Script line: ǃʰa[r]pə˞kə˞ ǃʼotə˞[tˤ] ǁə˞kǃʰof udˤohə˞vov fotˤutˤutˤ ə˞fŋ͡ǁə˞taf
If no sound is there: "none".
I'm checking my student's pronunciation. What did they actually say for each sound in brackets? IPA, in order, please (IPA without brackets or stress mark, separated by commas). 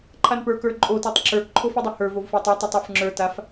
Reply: n, tˤ